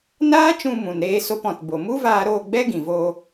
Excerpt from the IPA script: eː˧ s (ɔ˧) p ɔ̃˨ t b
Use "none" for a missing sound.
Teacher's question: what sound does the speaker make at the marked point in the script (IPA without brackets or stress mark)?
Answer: o˧